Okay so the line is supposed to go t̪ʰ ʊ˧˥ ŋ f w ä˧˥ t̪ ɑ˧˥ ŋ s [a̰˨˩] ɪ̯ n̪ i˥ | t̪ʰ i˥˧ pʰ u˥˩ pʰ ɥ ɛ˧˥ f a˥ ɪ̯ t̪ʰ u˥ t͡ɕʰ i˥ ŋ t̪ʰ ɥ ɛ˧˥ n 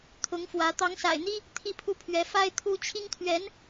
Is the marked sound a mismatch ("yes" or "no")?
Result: no